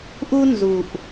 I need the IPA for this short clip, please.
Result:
ʔ u˦ n z u˨ ʔ

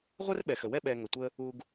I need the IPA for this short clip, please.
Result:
ʁʷ ɛ˥ r ɓ ɛ˩ x ə˩ w ɛ˥ ɓ ɛ˨ ŋ ə˩ tʷ ə˦ | u˨ ɡ

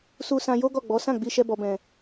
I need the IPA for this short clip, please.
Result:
s u˧ s ã˧ j o˦ ɡ ɔ˦˨ ɡ͡b ɔ˨˦ s ã˦˨ ɡ͡b i˧ ʃ ɛ˦ b ɔ˧ b ɛ̃˧

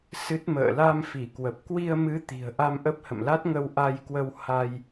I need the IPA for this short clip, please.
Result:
s ɨ˦˥ t̚ m ə̰ː˧˨ l a˧ m f i˧˩ k w ə˨˩ p̚ k w i˧ ə̯ m ɨ˨˦ t̪ i̤˨˩ ə̯ ʔ a˧ m ʔ ə˦˥ p̚ h ə̰˧˨ m l a˦˥ t̚ ŋ ə˧ w ʔ a˧ j k w ə˧ w h a˧ j

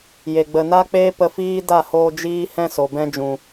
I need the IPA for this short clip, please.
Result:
j e˨ ɡ͡b ə˨ n a˦ k͡p eː˦ p ə˧ f iː˦ d a˦˨ h oː˧ d͡ʒ iː˧ h ɛ̃˧ s o˨ b ɛ̃˧ d͡ʒ ũ˨

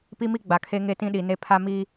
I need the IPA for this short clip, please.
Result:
p i˦ m i˦ ɡ͡b a˨ kʰ e˦ ŋ e˦ t ĩ˦ ɗ i˨ n e˦ pʰ a˦ m i˦

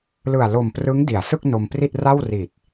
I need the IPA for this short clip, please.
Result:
l ɯ˨˩ a̯ l o˨˩ m p r ɯ˦˥ ŋ d i˩˦ a̯ s ɯ˥˩ k̚ n o˧ m p r i˥˩ t̚ r a˥˩ w r i˨˩ t̚

